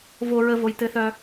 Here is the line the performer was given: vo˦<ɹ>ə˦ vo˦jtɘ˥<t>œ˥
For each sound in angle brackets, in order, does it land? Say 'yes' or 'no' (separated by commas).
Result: yes, no